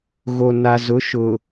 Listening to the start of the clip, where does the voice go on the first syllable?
low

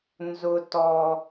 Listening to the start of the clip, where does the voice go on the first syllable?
high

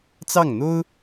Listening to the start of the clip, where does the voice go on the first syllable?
falling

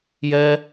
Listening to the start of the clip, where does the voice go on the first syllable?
high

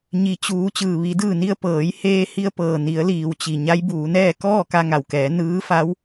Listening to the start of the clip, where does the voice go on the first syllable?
low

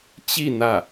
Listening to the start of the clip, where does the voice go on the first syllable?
falling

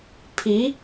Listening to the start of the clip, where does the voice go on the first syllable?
rising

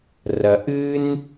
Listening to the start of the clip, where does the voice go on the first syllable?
low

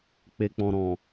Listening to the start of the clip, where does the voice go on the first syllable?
low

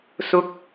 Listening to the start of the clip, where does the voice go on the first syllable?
high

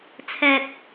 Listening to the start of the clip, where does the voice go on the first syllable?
low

